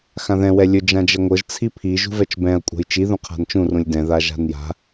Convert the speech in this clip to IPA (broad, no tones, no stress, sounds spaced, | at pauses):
x ã ð ɛ̃ w ɛ lʲ ɵ d͡ʒ ã d͡ʒ ɛ ŋʷ ɤ ʒ t͡sʰ i pʰ i ʒ ṳ v ɛ t͡ʃ b ɛ̃ ɐ̯ kʷʼ a̤ j t͡ʃ i ð ũ qʰ a̤ n t͡ʃ ũ r ũ lʲ d ɛ̃ ð a ʒ a̤ n j a̤